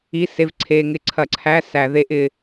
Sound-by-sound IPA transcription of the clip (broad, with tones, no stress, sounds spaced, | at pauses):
i˧˥˧ s e˧˥˧ v ǀʰ eː˧ ŋ ɪ˧˥ ǀʰ ɐ˧˩˧ ǀʰ æ˧˥˧ s æ˧˩˧ ð e˧˥ ʔ ɪː˧